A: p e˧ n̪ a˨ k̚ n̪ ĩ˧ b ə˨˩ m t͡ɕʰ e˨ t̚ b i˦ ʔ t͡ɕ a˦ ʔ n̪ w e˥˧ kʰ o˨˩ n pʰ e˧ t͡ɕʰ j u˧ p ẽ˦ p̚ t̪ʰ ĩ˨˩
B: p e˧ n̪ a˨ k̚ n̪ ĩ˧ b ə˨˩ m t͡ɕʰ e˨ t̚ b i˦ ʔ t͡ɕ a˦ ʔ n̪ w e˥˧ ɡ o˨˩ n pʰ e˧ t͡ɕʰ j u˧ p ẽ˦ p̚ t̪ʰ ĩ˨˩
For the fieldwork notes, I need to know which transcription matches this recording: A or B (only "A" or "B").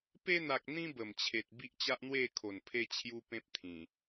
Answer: A